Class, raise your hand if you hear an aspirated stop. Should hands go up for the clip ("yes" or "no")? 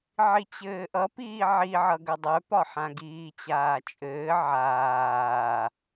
no